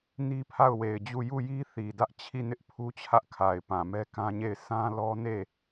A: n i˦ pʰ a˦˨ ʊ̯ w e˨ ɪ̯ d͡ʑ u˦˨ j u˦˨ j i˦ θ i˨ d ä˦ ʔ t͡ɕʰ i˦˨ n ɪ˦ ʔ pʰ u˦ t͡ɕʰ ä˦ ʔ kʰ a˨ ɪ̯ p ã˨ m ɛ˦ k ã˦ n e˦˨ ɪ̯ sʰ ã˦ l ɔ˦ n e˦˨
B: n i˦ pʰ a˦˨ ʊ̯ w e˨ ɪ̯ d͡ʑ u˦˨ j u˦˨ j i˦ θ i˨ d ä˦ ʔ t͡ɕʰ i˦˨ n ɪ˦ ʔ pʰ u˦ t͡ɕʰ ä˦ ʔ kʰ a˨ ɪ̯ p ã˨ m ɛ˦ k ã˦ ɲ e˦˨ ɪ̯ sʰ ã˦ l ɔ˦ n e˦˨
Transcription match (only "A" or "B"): B